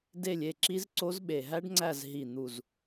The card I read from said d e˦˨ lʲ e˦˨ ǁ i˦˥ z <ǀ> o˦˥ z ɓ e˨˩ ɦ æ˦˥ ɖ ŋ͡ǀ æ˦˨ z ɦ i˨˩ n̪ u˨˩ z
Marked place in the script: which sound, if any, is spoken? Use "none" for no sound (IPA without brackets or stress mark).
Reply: ǀ